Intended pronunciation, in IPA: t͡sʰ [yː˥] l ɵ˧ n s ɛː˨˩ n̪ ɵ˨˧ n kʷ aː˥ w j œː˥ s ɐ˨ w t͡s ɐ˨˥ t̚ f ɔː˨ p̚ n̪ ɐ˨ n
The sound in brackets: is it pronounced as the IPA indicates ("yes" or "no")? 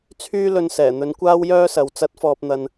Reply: yes